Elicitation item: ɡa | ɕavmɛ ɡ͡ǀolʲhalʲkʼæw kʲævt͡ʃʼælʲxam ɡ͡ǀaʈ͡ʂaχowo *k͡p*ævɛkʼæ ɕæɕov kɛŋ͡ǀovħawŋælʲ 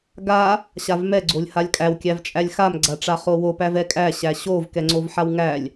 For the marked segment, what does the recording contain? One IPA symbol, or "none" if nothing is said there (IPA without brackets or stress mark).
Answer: p